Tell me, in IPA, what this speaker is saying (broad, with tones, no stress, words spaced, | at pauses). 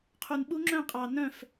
qʰu˨nɓu˦˥ ŋ͡ǁœ̃˦˨qʼɑ˨ nœ̃˦˨f